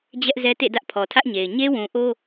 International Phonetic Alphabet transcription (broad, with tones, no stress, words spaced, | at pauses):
d͡ʑɛ˦ʔzɛ˦tḛ˦˨ dä˦ʔpʰɔ˨tʰä˦ʔɲe˨ɪ̯ ɲe˦wũ˨ʔo˦